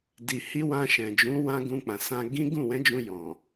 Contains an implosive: no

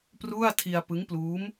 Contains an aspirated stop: yes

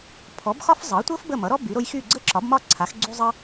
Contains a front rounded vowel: yes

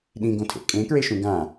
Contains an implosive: yes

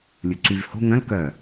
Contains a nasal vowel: yes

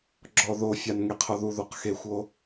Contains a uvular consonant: yes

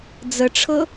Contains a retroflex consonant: yes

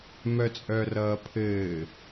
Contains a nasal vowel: no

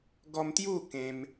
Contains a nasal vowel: yes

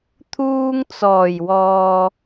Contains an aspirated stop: yes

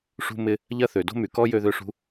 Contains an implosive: no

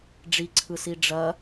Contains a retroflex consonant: yes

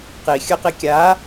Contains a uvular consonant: yes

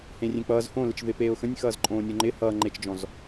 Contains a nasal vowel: yes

